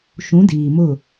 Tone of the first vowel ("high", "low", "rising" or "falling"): rising